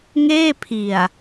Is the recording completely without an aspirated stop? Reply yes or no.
no